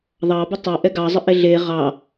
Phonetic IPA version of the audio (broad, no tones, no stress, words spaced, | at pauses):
ðˤɑbə tˤo ʔɛɡɑzˤə ʔeɮe ʁɑ